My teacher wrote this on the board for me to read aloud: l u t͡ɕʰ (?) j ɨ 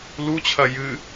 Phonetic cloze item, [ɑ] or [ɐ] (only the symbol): ɐ